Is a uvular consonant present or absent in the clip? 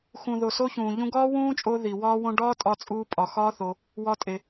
absent